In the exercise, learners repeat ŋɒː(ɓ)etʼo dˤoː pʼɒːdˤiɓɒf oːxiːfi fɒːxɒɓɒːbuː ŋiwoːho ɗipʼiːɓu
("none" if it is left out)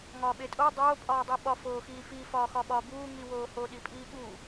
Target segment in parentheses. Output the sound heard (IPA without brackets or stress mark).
ɓ